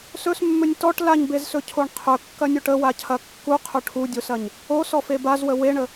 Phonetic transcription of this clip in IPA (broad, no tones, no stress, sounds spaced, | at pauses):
s ɵ s mː ɵ nʲ t ɔ ʈ l a ɲ b e z s ɵ cʰ o ɳ qʰ ɵ kː ɐ nʲ o ʈ ə w a cʰ ɐ kː u qʰ ɵ ʈʰ u dʲ o s ɐ ɲ | o s ɔ f e b a z w ə w e ɳ ə